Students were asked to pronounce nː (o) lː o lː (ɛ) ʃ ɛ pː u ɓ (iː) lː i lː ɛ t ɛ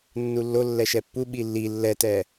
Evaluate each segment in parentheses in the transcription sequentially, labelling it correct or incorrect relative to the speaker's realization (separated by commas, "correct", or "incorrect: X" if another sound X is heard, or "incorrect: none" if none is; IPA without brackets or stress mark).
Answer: incorrect: u, correct, incorrect: i